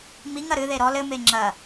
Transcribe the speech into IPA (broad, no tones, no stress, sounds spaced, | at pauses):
m i ŋ ɐ ɾ ɨ ð e ɾ ɔ l ɘ m e ŋ͡ǁ ɐ